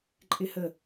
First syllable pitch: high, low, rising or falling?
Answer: high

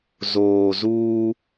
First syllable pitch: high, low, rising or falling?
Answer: low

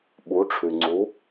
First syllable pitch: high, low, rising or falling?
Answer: rising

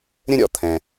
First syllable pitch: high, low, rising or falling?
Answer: high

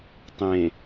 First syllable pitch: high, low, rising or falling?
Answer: low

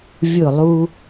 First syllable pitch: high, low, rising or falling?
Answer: falling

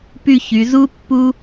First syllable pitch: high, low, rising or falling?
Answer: falling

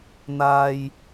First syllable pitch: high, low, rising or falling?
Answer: low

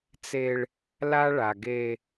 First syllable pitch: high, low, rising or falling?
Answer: high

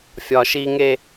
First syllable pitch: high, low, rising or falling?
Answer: high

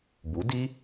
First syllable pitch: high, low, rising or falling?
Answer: rising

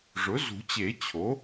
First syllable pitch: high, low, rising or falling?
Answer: rising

